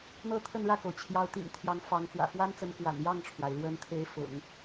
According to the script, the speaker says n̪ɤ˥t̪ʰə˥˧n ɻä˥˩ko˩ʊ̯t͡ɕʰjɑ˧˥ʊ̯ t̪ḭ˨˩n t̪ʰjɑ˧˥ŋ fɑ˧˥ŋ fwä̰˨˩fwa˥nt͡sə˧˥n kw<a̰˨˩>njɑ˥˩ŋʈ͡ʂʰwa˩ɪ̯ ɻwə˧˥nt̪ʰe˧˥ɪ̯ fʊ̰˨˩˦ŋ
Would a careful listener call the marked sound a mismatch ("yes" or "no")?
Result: no